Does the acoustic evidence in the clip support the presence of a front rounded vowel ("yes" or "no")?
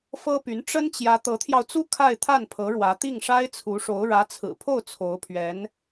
yes